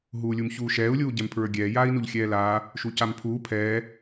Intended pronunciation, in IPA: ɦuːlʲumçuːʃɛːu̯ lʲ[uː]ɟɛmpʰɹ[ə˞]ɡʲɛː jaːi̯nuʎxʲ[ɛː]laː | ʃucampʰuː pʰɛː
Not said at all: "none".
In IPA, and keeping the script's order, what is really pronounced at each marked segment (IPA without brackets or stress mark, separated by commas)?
uː, ə˞, ɛː